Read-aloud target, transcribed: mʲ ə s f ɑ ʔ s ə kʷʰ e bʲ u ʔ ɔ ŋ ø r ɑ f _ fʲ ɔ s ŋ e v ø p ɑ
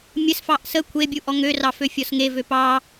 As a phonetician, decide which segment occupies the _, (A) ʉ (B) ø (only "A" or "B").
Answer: B